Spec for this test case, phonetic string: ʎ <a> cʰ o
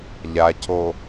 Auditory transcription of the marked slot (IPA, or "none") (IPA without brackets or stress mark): a